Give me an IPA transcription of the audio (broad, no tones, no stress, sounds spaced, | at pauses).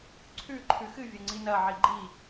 ǀʰ ʉ ǃʰ ʉ x ɨ vʲ ɐ ŋ͡ǀ i n ɐ ʕ i ɡ͡ǃ i